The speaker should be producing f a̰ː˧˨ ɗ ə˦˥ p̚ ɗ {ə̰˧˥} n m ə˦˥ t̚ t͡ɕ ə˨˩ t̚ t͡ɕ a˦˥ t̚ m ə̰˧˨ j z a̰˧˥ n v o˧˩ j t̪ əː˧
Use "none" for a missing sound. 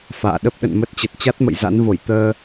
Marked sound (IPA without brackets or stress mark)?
ə̰˧˨